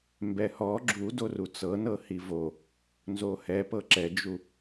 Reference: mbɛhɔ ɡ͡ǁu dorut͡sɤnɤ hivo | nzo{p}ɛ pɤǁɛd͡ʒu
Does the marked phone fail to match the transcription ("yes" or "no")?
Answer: yes